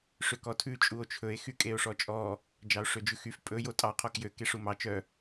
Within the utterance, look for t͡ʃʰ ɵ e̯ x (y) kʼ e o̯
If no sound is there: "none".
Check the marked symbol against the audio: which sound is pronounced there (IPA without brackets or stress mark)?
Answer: y